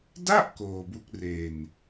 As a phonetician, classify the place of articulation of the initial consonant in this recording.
alveolar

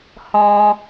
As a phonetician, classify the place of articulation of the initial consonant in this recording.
glottal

